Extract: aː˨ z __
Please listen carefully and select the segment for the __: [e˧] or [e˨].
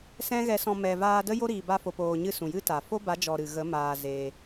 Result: e˧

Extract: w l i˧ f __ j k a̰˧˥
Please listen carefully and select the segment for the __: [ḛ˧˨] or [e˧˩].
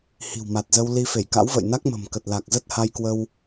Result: e˧˩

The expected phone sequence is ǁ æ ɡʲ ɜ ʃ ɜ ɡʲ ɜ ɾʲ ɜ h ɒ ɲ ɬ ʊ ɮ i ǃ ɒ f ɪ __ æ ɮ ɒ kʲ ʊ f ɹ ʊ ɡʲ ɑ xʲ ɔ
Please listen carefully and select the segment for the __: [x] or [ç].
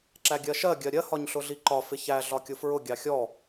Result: ç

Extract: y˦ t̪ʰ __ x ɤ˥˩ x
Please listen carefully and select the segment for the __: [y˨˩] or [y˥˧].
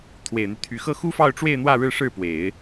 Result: y˨˩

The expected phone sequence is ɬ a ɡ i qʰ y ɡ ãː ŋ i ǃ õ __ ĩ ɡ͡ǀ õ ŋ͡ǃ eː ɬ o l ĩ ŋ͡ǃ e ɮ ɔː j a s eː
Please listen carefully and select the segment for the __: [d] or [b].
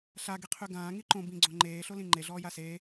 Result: b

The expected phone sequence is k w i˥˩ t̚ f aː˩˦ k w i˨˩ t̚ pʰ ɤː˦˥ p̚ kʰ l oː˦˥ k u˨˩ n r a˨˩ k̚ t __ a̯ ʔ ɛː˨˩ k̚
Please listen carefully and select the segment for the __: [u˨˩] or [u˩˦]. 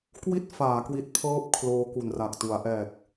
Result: u˩˦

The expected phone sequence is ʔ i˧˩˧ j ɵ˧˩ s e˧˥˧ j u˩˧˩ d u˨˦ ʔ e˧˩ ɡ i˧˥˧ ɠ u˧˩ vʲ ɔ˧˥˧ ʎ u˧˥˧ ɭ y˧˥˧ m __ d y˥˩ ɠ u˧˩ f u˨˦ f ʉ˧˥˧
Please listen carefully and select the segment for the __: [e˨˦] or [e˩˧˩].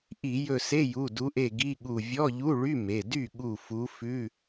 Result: e˩˧˩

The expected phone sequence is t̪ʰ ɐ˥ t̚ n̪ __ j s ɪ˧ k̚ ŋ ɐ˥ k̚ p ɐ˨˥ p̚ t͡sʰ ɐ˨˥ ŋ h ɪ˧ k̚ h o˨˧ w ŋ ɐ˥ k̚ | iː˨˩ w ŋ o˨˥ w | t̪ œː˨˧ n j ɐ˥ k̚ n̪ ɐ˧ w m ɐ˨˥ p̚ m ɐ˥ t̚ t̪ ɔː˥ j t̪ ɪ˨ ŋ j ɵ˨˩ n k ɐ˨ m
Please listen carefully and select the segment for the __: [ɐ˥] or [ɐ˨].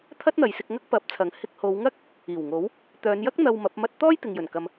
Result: ɐ˨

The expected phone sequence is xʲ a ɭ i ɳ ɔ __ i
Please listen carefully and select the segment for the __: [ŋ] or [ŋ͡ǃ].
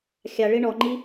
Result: ŋ͡ǃ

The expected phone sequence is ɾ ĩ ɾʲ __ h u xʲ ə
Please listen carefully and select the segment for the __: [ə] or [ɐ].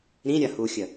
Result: ɐ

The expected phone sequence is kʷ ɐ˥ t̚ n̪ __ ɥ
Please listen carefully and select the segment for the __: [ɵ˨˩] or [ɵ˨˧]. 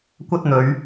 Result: ɵ˨˧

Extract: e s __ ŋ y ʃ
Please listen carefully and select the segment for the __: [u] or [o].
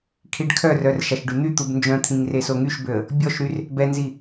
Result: o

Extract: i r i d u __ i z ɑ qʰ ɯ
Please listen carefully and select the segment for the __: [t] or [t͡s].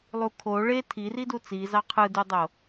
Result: t͡s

